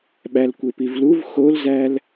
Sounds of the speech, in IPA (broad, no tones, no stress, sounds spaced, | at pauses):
ɓ æ l kʷ e p i v l u v x o l z æ l